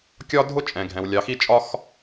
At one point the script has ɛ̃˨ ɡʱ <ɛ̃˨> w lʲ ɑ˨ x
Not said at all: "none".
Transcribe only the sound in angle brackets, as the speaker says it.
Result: ɛ̃˨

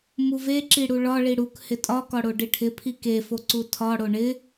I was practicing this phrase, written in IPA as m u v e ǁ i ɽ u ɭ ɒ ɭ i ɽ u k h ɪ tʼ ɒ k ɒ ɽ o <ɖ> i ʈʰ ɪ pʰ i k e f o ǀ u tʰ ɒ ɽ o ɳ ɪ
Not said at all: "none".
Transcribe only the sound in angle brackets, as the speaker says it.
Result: ɖ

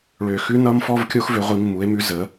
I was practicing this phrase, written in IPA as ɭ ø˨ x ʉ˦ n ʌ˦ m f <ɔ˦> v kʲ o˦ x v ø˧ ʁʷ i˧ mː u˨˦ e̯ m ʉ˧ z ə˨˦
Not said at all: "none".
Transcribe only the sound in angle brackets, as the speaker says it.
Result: ɔ˦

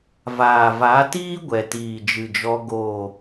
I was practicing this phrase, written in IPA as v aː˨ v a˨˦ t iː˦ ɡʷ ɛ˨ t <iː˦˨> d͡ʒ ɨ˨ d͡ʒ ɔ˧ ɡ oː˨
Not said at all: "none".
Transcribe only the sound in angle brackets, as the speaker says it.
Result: iː˨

